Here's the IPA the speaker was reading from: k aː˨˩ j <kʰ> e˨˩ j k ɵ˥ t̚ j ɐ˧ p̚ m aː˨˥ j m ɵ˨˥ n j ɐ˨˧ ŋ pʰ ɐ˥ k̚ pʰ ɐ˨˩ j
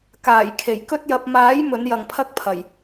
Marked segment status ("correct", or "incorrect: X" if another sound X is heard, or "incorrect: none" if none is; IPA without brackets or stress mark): correct